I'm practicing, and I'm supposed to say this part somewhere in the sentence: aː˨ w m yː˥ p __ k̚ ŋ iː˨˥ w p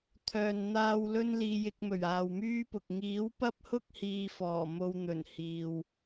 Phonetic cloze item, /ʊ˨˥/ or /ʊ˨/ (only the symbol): ʊ˨